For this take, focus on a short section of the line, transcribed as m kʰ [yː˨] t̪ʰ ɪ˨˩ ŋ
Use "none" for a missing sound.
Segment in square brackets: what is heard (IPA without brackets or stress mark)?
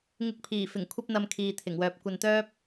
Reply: iː˨